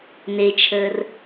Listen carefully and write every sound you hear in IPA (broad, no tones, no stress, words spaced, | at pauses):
net͡ʃʰəːr